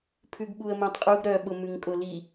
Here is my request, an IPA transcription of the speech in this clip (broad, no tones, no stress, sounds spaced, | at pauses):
pʰ ʉ ɡ ɓ u ə̯ m œ̃ tˤ qʼ u ɡ ɾ œ ɓ ʊ m ʉ ŋ kʼ ʊ l i